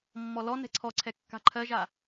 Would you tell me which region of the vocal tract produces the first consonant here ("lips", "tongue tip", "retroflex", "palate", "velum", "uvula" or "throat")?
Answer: lips